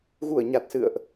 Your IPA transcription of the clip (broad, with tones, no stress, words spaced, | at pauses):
ɣu˧˩ə̯ɲa˨˩t̚sɨ̰˧˨ə̯ʔ